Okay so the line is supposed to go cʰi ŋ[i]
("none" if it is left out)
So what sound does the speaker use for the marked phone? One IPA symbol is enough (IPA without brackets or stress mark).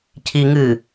ɨ